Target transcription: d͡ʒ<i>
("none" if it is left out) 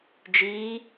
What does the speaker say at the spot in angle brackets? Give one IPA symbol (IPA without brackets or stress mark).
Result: i